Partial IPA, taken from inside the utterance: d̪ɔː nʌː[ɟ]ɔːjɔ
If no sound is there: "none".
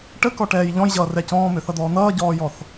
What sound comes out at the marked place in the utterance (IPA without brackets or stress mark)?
ɟ